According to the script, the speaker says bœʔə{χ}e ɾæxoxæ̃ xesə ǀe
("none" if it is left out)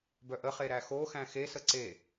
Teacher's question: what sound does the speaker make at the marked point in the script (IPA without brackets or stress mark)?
χ